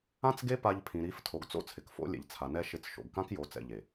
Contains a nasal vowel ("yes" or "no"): yes